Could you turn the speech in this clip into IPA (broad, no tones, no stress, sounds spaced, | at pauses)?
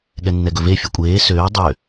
ɠ ɛ nː ɛ ɡ ɵ v e fʲ ɵ kʷʼ eː s øː dˤ ø